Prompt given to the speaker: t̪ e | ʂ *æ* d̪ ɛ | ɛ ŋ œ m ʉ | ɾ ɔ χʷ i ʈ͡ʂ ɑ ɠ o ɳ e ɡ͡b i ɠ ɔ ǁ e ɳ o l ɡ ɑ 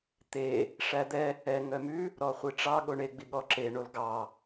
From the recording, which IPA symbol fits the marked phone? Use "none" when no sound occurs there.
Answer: æ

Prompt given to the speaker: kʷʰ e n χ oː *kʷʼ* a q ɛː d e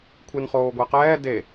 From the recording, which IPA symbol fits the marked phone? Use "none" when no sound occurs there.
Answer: ɡʷ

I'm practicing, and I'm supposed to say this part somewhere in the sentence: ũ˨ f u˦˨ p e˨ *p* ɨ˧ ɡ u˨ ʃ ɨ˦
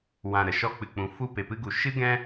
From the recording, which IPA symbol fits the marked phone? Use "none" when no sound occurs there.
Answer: p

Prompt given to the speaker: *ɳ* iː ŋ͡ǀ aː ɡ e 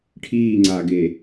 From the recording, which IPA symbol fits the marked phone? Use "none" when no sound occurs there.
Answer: ʈʰ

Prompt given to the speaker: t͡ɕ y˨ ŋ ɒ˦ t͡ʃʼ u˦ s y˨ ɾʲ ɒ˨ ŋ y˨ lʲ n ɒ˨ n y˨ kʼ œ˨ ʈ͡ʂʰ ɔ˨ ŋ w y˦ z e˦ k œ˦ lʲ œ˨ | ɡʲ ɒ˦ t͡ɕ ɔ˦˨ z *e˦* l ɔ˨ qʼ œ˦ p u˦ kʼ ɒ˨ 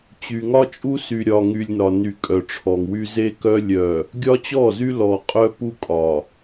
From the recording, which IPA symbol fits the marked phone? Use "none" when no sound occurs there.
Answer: y˦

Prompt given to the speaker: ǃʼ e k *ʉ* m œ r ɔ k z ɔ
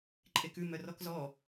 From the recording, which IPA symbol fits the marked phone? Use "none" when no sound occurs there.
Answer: ʉ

